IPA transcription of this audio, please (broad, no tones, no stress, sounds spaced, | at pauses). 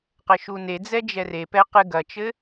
q ɘ ʃ u n e d͡z ɛ d͡ʒ ɛ r e p ɛ q ɨ ɡ ɐ t͡ʃ ɘ